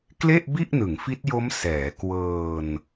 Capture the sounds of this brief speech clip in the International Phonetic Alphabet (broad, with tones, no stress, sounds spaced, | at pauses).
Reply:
k l e˥˩ ʔ b i˥˩ ʔ n ɯ˩˦ ŋ f i˦˥ t̚ j o˦˥ m s ɛː˩˦ k w ɤː˧ n